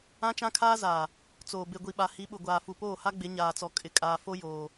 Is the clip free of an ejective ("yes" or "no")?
no